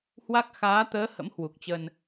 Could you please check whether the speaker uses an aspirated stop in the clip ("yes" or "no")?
no